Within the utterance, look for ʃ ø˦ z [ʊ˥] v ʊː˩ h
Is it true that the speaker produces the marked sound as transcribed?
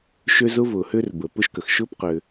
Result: yes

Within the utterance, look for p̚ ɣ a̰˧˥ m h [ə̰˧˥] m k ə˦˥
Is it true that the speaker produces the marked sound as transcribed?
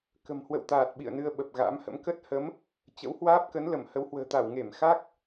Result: yes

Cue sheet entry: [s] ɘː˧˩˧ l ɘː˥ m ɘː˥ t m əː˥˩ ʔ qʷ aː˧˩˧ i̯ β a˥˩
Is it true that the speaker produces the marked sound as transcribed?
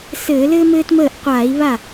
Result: yes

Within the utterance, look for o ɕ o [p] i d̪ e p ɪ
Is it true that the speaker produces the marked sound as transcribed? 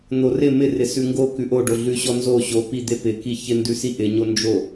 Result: yes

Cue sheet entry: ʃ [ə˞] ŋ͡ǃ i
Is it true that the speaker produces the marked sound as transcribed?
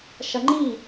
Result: no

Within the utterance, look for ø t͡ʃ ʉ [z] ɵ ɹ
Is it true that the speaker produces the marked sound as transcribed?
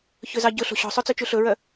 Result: no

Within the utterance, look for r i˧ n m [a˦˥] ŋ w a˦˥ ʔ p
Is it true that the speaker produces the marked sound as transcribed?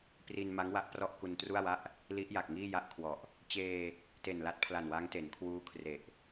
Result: yes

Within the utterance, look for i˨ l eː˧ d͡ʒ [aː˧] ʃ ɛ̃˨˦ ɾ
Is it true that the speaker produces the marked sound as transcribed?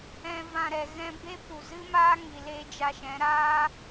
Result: no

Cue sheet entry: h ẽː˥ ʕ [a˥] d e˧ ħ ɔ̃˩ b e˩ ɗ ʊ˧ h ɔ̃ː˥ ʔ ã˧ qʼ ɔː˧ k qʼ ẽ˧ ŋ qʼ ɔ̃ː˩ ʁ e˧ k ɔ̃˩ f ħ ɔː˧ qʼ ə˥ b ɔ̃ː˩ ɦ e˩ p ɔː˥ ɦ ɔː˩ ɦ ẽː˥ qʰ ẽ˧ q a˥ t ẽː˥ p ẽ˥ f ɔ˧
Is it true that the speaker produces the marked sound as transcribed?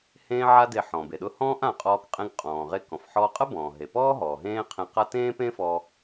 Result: yes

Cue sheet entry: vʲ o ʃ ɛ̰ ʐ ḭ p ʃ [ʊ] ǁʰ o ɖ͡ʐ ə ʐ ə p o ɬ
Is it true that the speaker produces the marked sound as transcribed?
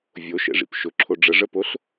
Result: yes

